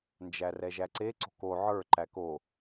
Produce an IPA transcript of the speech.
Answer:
nd͡ʒærɛʒæǀe ǀo̤ko ʕə˞ ǃæko

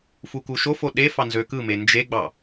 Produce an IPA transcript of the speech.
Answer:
fukuʃofo ɗefɑ nzøkɯme nd͡ʒeɡ͡bɑ

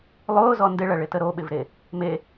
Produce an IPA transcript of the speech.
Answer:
lˠʊːzɔ ndɪɭɐɭɪtə ɾoɓɪvɾe | me

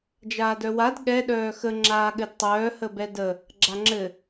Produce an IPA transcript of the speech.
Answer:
d͡ʒaːdœwad ɠɛ ɗœːxə ŋ͡ǁaːɠɘdtˤœː həbɛdə | ɡ͡ǁaŋ͡ǁɘ

